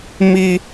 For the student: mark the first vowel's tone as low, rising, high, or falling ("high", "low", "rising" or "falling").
high